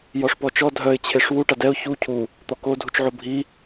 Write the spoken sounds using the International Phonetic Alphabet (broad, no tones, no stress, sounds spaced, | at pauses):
j ɔ ʂ p ɔ t͡ʃ ɔ dʱ œ ɪ̯ t͡ɕʰ e ʂ w u ʈ a d ɛ ʊ̯ ç u cʰ u | t̪ ɔ k o dʱ u t͡ʃ ʕ o bʱ i